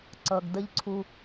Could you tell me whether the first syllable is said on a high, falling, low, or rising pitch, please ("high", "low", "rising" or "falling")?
low